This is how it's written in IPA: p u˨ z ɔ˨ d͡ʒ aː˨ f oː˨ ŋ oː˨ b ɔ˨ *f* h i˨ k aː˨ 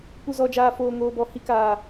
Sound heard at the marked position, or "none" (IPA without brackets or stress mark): none